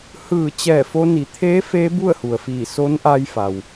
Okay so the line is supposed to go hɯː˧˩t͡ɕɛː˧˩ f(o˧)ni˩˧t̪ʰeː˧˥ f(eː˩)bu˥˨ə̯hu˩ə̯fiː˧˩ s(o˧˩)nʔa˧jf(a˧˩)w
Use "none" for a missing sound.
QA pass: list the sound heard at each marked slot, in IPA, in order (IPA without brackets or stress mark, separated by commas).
o˧, eː˧˥, o˧˥, a˩